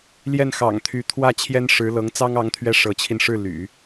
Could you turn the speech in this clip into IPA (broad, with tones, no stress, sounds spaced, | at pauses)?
l j ɛ˥˩ n x ɑ̰˨˩ ŋ t̪ʰ y˧˥ t̪ʰ w ä˥˩ t͡ɕʰ j ɛ˥ n ʂ ɻ̩˧˥ l ɤ˧˥ ŋ t͡s ɑ˥ ŋ ɑ˧˥ ŋ t̪ʰ ɥ ɛ˥˩ ʂ ɤ˧˥ t͡ɕʰ i˧ n ʂ ɻ̩˥˩ l y̰˨˩˦